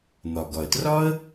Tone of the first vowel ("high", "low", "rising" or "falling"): low